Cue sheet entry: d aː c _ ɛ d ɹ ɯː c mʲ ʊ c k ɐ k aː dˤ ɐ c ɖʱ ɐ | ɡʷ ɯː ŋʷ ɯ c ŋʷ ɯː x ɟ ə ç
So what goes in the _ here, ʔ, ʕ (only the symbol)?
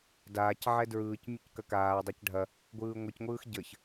ʕ